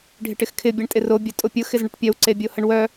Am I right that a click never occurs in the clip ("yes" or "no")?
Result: no